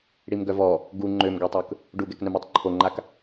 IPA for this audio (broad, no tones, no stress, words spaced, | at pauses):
ɽimɡœvɔ | ɡu ŋ͡ǃømɡøtˤøk | ɖuɡɛknœmetˤ ǃʰoŋ͡ǃak